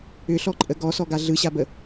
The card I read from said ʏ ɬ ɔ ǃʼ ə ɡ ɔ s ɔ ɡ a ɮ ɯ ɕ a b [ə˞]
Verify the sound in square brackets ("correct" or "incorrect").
incorrect